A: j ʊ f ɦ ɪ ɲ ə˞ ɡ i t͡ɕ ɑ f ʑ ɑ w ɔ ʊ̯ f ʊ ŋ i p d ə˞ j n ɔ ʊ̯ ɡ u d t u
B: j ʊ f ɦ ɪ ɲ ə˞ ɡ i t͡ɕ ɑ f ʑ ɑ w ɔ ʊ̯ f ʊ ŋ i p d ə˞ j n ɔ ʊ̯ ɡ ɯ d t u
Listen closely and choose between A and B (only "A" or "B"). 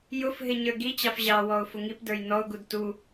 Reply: A